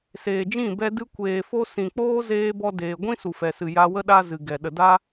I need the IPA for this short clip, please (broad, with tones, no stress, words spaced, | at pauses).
seː˨d͡ʒĩ˦˨ bɛ˧ dɨ˧kʷeː˨fo˧ sĩ˨ k͡poː˦zeː˧bɔ˧deː˨ ɡʷĩ˦su˨fɛ˨sɨ˨ ja˧wə˦ ɗa˧ zɨ˨ɡɛ˨ ɗə˨da˦